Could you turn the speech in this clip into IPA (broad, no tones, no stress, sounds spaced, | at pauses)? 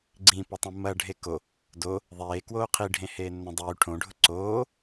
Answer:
ɡ͡ǀ ĩ p ɐ tˤ õ m ɐ ɖʱ e k o | d o | ðˤ eː k w oː qʰ i ɖʱ ẽ h eː nː õ dˤ yː ʈʰ õ ɖʱ ʊ ǀ oː